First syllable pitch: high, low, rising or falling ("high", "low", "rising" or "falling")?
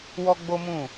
high